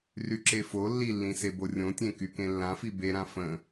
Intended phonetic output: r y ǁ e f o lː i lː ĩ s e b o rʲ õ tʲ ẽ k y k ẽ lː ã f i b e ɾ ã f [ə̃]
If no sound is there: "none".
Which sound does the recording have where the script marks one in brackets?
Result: ə̃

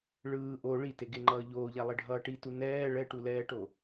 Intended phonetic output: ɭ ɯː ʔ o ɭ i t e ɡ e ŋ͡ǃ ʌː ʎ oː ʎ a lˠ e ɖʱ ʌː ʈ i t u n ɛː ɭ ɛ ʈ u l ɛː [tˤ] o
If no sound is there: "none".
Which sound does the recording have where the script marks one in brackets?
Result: ʈ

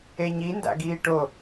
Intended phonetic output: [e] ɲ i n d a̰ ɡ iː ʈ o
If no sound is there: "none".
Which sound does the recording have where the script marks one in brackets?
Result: e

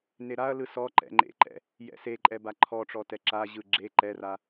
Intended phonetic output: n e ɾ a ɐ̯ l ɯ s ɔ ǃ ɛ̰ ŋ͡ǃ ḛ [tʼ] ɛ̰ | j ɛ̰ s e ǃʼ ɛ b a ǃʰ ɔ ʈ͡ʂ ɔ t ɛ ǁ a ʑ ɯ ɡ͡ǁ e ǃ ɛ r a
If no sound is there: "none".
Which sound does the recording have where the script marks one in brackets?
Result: ǃ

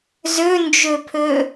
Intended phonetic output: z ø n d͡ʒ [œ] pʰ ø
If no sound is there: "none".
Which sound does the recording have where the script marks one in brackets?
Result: ø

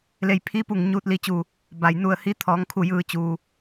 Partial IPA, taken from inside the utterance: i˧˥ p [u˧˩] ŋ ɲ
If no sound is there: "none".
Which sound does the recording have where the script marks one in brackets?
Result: u˧˩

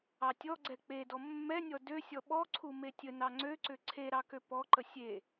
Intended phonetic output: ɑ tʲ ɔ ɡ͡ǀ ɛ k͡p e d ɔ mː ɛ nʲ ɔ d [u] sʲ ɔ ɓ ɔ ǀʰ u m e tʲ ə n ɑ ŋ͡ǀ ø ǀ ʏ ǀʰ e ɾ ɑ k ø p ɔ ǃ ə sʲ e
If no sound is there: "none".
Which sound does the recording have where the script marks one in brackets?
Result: ø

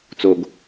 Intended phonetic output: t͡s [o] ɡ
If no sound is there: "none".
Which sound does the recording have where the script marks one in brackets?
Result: o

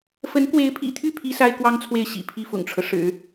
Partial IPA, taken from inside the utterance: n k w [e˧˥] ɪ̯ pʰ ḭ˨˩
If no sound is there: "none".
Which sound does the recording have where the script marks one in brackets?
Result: e˧˥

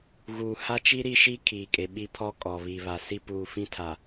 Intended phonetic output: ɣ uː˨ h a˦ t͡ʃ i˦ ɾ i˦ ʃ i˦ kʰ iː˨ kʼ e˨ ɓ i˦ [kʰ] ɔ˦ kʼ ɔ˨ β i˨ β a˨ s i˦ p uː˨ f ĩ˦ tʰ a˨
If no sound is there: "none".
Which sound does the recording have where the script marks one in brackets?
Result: pʰ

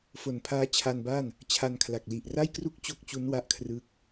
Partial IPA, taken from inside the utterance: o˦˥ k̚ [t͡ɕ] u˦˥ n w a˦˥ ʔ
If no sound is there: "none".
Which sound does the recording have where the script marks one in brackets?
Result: t͡ɕ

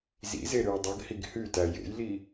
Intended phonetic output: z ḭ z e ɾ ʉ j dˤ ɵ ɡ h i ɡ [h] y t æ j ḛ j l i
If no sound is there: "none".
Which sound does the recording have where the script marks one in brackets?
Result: h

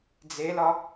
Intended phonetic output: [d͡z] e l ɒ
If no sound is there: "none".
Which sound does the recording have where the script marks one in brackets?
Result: d͡z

